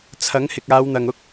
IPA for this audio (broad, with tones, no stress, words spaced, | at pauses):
t͡sʰɐ˨˥ŋhɪ˨k̚aː˨˧wn̪ɐ˨ŋ ʊ˥k̚